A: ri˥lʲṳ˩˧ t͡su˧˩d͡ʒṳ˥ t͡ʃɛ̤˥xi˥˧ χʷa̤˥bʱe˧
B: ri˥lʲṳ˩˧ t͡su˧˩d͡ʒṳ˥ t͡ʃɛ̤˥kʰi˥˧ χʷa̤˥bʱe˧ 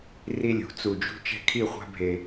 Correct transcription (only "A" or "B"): B